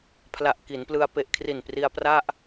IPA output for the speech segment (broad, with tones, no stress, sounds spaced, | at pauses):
pʰ l a˨˩ ʔ k i˩˦ n p l ɯ˧ a̯ p e˨˩ ʔ kʰ r i˨˩ n p r i˧ a̯ p r a˥˩ ʔ